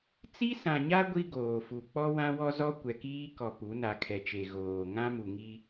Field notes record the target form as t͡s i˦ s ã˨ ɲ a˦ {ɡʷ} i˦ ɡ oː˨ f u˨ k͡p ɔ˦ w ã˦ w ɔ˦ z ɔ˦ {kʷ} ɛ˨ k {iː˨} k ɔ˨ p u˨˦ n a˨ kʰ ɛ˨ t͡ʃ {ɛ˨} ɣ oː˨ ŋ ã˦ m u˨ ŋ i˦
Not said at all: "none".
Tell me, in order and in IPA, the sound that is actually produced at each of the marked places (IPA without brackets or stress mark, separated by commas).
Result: ɡʷ, kʷ, iː˦, e˨